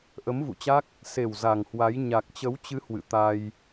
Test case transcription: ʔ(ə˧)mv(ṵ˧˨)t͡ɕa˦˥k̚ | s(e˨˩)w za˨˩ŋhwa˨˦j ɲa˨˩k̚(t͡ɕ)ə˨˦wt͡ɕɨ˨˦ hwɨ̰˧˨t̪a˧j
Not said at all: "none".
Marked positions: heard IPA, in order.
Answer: ə˨˦, ṵ˧˨, e˨˩, t͡ɕ

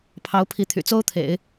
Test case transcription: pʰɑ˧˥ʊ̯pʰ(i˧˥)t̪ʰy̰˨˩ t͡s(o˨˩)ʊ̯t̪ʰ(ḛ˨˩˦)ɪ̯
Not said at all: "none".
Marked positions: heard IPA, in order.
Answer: i˧˥, o˥, ḛ˨˩˦

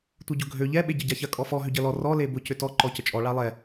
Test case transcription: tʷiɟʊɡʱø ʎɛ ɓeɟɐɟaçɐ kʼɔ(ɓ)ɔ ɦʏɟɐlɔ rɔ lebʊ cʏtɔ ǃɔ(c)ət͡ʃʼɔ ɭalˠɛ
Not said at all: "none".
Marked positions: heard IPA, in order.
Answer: f, c

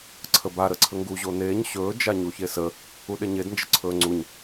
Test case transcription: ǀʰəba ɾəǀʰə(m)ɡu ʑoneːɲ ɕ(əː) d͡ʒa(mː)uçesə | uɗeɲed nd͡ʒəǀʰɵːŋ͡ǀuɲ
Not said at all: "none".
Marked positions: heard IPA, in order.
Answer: ŋ, ɵː, ɲ

